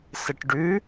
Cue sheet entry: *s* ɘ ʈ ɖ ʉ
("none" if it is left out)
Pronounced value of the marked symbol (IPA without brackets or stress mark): s